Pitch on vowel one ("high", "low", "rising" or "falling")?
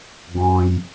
low